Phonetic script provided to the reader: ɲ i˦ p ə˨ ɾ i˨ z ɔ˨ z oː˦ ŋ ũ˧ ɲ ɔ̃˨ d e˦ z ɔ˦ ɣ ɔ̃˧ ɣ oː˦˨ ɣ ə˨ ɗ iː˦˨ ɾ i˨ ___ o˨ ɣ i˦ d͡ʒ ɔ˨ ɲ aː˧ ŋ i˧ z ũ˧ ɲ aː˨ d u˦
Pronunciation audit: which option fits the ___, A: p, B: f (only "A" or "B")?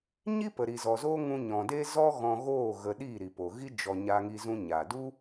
A